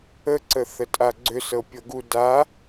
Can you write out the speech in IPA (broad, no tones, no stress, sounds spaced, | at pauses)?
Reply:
ə ǀ ə θ ə tʼ a ɡ͡ǀ ʏ s ɤ pʲ ɤ ɡ u d a